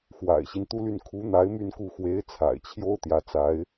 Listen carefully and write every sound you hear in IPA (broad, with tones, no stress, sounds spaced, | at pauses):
x w a̰˨˩ ɪ̯ ɕ i˦ n t̪ u˥ l y˥˩ n kʰ u˧˥ n̪ a˧˥ ɪ̯ m y˥˧ n k u˥˩ x w e˧˥ ɪ̯ t͡sʰ a̰˨˩ ɪ̯ t͡ɕʰ j o˥ ʊ̯ t̪ j ä˧˥ t͡s a˧˥ ɪ̯